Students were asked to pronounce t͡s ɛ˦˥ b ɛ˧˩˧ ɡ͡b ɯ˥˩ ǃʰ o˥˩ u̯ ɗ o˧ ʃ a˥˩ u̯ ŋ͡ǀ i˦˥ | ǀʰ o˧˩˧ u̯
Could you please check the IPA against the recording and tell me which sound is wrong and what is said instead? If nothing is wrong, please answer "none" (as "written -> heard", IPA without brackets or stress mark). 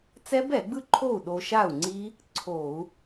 none